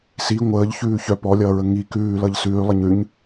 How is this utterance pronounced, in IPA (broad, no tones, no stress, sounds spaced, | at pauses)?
s i ŋʷ əː ʎ ç ʉː ç œ p ɔ lʲ ʌː ɹ ə ŋ i k ʉː l ʌ ʎ s ʉː lˠ ə ɲ ʉ ɲ